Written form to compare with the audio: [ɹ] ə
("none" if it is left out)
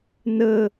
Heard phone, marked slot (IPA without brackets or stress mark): n